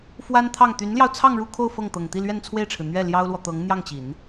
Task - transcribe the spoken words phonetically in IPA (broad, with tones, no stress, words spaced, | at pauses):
fwa˥nt̪ʰɑ˥˩ŋ t̪y˧˥nljɑ˧ʊ̯ t͡sʰɑ˥˧ŋɻu˥˧ kʰo˥˧ʊ̯ fɤ˥˩ŋt̪ɤ˨˩ŋ t̪i˥˧lɥɛ˥˧nt͡sʰwe˥˩ɪ̯ʈ͡ʂʰɻ̩˩ n̪ɥɛ˥˩ ljɑ˥ʊ̯lwɔ˨t̪ɤ˧˥ŋ n̪jɑ˥˩ŋt͡ɕi˨˩˦n